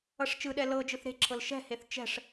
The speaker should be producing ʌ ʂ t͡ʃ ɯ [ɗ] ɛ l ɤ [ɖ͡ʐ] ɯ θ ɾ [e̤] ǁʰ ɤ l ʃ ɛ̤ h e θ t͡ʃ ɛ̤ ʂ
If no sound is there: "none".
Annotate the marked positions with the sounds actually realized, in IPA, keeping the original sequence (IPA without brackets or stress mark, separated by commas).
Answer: ɗ, d͡ʒ, e̤